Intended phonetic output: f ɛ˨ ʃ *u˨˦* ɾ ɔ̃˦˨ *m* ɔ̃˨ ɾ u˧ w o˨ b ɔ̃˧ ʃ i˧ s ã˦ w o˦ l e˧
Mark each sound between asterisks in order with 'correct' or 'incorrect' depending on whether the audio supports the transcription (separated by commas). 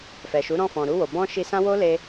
correct, incorrect